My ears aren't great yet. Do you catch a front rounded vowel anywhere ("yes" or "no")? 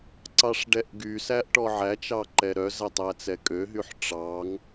yes